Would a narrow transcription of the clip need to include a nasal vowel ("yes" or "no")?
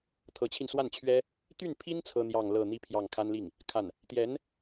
no